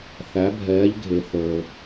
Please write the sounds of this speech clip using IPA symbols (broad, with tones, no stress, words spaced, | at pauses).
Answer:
θæ˧˥bʱɛː˧˥ʎɡʱe˧ θə˞˧